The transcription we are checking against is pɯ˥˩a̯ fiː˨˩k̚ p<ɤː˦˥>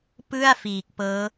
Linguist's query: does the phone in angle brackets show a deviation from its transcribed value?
no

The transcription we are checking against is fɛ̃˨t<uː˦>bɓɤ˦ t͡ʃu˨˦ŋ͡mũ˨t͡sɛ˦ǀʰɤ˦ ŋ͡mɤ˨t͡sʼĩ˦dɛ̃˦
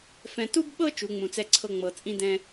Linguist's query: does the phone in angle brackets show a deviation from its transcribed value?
yes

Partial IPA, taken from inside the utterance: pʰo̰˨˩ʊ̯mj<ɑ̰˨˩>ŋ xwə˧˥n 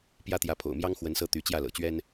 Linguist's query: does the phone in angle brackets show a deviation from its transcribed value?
yes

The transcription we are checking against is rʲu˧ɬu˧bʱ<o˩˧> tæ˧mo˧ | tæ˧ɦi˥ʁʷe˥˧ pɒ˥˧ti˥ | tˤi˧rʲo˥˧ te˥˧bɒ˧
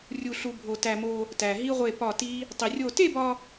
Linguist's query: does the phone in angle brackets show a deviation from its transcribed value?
yes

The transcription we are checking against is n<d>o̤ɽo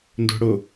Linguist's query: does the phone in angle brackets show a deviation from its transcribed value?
no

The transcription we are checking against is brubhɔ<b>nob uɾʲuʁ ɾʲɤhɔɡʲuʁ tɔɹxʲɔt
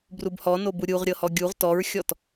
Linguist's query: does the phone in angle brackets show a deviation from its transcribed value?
yes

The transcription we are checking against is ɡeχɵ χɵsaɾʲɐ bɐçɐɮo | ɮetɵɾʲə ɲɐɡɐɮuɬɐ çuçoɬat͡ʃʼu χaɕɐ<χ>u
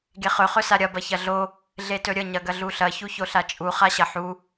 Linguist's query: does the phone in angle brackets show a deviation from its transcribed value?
yes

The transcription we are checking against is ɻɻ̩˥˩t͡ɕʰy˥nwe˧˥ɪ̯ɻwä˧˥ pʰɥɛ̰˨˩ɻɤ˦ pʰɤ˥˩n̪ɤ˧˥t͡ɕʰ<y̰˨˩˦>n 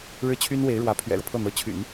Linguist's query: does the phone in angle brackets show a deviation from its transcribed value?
no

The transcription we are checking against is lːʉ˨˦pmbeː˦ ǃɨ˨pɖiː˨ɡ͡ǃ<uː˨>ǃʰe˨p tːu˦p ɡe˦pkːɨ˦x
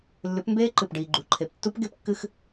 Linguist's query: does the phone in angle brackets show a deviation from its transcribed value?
yes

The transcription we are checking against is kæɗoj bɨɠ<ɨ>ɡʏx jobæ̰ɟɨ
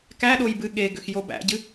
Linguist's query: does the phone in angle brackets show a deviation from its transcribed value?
yes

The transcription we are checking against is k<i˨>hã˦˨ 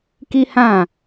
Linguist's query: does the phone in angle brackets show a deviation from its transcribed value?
yes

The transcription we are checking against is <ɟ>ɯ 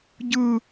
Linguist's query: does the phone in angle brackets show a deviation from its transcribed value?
no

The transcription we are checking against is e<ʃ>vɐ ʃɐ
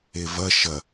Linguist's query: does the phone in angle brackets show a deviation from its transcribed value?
yes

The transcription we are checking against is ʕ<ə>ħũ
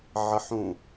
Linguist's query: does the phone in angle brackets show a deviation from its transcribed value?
no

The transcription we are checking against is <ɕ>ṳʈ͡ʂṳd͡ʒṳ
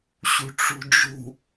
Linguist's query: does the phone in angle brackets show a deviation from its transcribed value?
no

